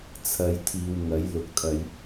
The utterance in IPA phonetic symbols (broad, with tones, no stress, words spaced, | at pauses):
t͡sʰɐ˨˧jt̪ʰiː˨wŋɐ˨˥j lʊ˨˥k̚t̪ʰɐ˨˧j